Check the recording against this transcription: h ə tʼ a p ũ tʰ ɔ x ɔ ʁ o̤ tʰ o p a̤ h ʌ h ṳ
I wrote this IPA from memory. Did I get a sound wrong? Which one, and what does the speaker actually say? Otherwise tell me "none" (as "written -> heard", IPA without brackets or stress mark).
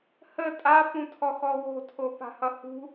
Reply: ʁ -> w